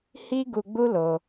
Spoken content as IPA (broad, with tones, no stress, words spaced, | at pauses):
hi˦ɡu˧ɡ͡bu˦ lo˧